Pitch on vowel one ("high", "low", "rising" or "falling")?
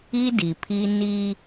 high